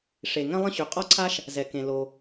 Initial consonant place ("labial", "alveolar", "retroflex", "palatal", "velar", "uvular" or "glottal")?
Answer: retroflex